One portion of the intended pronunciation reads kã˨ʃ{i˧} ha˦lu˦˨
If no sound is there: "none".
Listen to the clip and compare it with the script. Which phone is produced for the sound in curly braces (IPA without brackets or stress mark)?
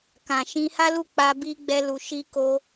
ĩ˧